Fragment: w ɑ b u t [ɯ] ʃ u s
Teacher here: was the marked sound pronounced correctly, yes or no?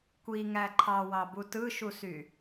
yes